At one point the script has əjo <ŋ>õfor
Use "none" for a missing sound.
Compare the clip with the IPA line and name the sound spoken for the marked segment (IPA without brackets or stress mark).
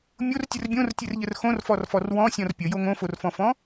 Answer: ŋ